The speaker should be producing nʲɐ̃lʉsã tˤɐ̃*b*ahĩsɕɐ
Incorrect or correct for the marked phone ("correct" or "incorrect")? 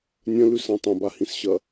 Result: correct